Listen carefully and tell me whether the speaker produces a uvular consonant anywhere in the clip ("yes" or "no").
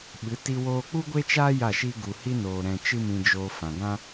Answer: no